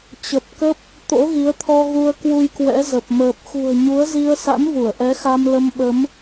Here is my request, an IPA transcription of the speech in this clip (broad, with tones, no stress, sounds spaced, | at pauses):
t͡ɕ ə˨˩ p̚ k ə˦˥ p̚ | t̪ o̰˧˥ ɣ i˨˦ ə̯ t̪ʰ ɔ˧ ɣ u˧ ə̯ k w u˧ j k w ɛ̰˧˥ z ə˨˩ p̚ m əː˨˩ p̚ x ṳ˨˩ ə̯ ɲ u˨˦ ə̯ z i˧ ə̯ s a̰˧˥ n v u˧˩ ə̯ ʔ ɛ˨˦ x a˧ m l ə˧ m ɓ ə˨˦ m